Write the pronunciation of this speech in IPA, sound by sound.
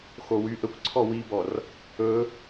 x o w y ʔ ə kʷ ǀʰ ɔ w i b ɔ r | ɵ

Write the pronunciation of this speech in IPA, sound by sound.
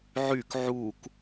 ʕ y k ʕ u k

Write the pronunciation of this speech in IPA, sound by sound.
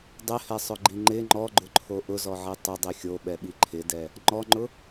dˤ ɪ h ɛ sˤ ʊ ɡ͡ǃ i ŋ͡ǃ ɪ ŋ͡ǃ ɔ ɡ͡ǃ ʊ ǃʰ o ʔ ʊ z ɔ ʕ i tˤ ʊ dˤ i xʲ o ɓ ɛ ɓ i ǃʰ ɪ d ɛ | ŋ͡ǃ ɔ ŋ͡ǃ ʊ

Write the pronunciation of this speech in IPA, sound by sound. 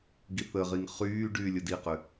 ɡ i θ ə ʁ i ŋ χ yː ɖ yː lʲ ɘ d i q ʏ

